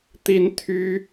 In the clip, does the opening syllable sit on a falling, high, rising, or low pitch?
high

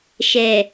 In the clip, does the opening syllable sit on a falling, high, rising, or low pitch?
low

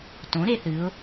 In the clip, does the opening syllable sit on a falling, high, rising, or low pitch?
rising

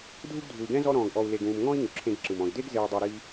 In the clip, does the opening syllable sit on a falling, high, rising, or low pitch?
high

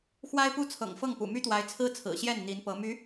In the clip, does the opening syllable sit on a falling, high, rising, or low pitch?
high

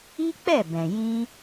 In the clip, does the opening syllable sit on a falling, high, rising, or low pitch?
high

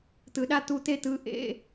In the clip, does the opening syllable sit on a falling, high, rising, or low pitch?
low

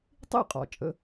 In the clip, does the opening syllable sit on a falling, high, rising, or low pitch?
falling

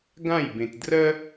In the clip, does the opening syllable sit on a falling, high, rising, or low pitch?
falling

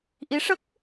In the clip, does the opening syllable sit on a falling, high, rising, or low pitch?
rising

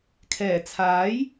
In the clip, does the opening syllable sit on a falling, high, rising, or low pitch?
low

